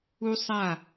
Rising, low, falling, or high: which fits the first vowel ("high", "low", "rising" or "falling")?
high